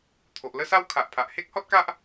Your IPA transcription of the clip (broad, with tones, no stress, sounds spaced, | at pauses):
t̪ʰ o˨ ʔ l ə˥˧ s a˦ w kʰ a˨ ʔ pʰ a˨ ʔ h e˦ k̚ h ɔ˦ t̚ k a˦ ʔ